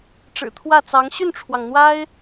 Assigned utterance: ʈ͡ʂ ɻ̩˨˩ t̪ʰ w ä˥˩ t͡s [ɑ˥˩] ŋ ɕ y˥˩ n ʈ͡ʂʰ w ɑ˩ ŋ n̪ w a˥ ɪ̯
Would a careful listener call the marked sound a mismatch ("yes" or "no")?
yes